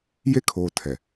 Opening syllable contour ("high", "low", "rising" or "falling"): high